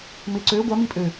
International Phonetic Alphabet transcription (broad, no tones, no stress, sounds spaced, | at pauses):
m ɪ ǀ ø ɡʷ a m i pʼ ø